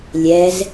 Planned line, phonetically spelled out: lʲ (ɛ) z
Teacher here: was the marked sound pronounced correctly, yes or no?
yes